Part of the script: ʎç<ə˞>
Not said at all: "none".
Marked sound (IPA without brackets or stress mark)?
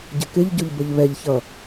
ʌ